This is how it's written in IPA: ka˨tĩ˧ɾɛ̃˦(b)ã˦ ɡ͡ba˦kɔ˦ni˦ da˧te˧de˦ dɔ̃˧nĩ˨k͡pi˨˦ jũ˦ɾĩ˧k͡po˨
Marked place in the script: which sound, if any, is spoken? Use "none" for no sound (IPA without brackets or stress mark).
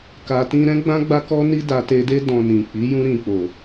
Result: ɡ͡b